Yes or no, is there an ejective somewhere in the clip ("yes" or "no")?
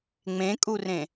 yes